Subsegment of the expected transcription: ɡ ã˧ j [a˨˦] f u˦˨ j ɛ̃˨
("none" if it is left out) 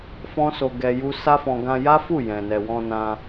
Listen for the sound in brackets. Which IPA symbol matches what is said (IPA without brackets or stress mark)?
a˦